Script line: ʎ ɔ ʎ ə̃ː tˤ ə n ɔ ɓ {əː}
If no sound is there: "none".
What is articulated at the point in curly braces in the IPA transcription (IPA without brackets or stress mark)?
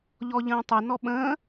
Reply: ə̃ː